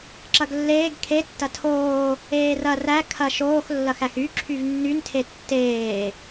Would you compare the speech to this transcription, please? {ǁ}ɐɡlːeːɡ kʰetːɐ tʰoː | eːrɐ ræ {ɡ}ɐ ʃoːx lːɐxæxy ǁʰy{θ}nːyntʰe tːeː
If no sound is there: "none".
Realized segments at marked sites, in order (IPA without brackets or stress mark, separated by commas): ǁ, kʰ, v